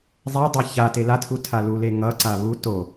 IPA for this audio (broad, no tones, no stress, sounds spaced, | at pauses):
zˤ e dˤ a ç a t e l a tʰ u tʰ a l u l e ŋ ʌ ǀ a β u t o